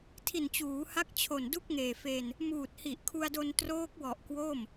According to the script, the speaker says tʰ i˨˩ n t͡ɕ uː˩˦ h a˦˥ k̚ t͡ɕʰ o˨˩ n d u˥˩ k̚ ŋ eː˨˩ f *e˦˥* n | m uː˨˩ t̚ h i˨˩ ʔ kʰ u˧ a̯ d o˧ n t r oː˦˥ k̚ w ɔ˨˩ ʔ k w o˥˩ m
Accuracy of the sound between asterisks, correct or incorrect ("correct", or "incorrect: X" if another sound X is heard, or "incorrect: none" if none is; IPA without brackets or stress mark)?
incorrect: e˧